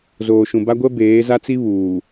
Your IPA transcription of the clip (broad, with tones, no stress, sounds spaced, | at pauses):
z oː˨ ʃ ũ˨ b a˦ ɡʷ ɛ˦ b eː˨˦ z a˦ t͡s i˦ β uː˨